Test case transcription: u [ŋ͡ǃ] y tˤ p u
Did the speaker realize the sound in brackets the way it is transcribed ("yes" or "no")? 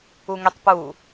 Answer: no